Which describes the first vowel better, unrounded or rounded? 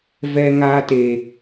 unrounded